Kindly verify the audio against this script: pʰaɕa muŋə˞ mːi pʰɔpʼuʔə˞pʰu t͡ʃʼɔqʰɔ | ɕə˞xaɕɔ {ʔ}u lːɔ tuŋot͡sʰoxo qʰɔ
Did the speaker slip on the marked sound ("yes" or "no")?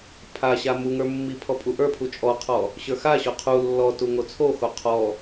yes